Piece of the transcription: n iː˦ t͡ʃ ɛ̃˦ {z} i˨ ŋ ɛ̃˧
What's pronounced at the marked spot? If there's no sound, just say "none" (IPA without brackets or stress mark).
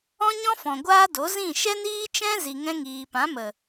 z